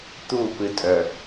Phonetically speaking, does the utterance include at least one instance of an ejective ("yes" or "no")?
yes